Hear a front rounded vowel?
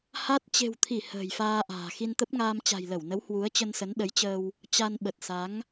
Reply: no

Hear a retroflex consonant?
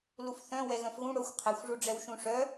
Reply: yes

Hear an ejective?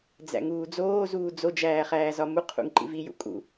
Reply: yes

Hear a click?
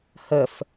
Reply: no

